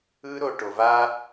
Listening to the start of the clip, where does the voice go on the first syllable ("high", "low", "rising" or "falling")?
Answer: high